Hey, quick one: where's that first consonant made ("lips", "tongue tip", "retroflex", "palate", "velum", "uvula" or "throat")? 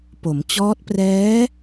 lips